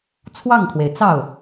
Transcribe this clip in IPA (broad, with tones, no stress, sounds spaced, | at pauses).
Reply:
t͡sʰ w ɑ˥˩ ŋ kʰ w e˩ ɪ̯ t͡s ɑ˥˩ ʊ̯